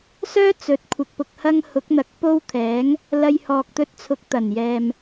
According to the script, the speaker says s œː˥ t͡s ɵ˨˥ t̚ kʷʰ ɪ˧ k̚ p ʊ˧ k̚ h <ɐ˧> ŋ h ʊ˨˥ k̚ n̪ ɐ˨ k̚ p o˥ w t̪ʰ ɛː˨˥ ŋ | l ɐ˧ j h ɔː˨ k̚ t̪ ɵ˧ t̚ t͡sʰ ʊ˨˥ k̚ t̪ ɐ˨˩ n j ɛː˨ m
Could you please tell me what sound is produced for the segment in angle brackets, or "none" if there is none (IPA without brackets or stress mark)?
ɐ˥